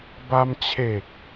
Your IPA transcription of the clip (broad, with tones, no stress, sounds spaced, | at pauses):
b a˧ m t͡ɕʰ e˨˩ k̚